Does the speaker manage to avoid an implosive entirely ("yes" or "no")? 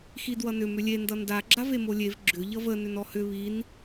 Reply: yes